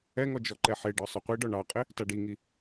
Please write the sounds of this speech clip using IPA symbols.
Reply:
ɛ ŋ ɔ d͡ʒ ɔ ǃ ɛ ħ e ɖ ɒ sˤ ʊ qʷ i ɖ ɒ ɳ ɑ qʼ ɪ | t a ɖ i ŋ i

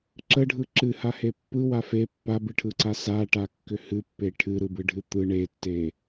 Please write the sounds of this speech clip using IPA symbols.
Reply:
ǁ ə ɖʱ ɯ ǁ ɨ h a h e pː ɯ w a f e pː a b ɨ ʈʰ ɯ ǀ a s a ʈ a kː ʏ h ɨ pː e ʈʰ ɨ ɾ ɯ b ɯ ɖʱ ɨ t̪ ɯ ɳ e tː e

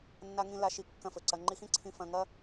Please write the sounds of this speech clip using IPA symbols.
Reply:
nː a˥ ŋ ĩ˥ l a˧ ʃ i˧ kː ɐ̃˧ f ɵ˩ ǀ ɐ˧ ŋ͡ǃ i˧ x ĩ˥ ǀʰ ĩ˧ f ɐ̃˧ ŋ ɐ˥

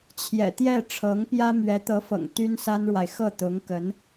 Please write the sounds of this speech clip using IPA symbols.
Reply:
t͡ɕʰ j ɛ̰˨˩ t̪ j ɛ˥˩ ʈ͡ʂʰ ɤ˧˥ ŋ p j ä˥ m ɥ ɛ˧˥ t̪ ɤ˧˥ f ɤ̰˨˩ ŋ t̪ y˥ n s a˥ n ɻ w a˨ ɪ̯ x ɤ˥˩ t̪ ʊ˧˥ ŋ k ə˧˥ n

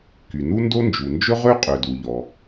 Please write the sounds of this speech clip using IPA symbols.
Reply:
k y˩ n u˥ n d o˥ n d͡ʒ u˩ n d͡ʒ ɵ˥ ʁ ø˥ qʼ ø˩ d u˩ ʎ ɔ˩

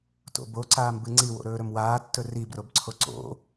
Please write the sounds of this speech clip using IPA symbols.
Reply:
t o̰ b o ǀ aː m b ɨ ŋ͡ǀ i w o̰ ɾ ɵː ɾ ɵ m w aː tː ɵ r i b r o b ǀʰ o ǀ o̰

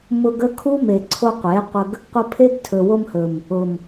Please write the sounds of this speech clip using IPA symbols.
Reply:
m ʊ˧ ɡ ə˦ kʰ u˦ m e˨ ǀʰ o˧ qʷ e˨˦ qʷ ə˧ ɡ | qʷ ə˧ pʰ e˦ ɡ tʰ ɵ˨ w o˧ m h ɵ˨ m | ʊ˨ m

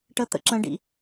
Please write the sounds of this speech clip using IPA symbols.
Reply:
ʈ ə t̪ ə̰ ǁ ə̃ ɖ ḭ

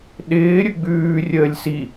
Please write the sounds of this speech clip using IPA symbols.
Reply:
ɗ ɪː ɾʲ ɵ ɡ͡b ʉː rʲ əː lʲ s i

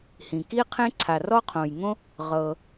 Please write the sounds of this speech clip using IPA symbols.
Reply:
h ĩ˩ k i˥ qʰ ẽ˥ ǀʰ a˩ r ɔ˥ qʰ õ˩ j ŋ õ˥ | ʁ ɤ˩

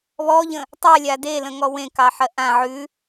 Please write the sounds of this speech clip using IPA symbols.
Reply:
β ɔ ʎ ə̃ | tˤ a lʲ a d e l ə̃ ŋ ɔ w ẽ k ɑ ħ ɜ ʔ ã ʕ ʉ

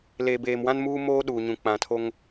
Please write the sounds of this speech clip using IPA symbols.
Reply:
l eː˨ b eː˨ m w ã˦ n m uː˦ m oː˦ ɗ uː˨ ɲ ũ˨ k͡p ã˨ tʰ o˦ ŋ

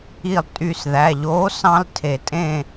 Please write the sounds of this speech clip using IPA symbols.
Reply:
i˦˨ lˠ tʼ y˦˨ s ð æ˩˧˩ ʎ oː˨˥ s ɑ̃˦ l tʰ e˨˩˦ tʼ ẽ˦˨

